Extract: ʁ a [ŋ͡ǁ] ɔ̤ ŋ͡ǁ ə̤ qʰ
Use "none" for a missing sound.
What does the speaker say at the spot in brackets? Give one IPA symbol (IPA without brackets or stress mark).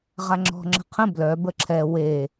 ŋ͡ǁ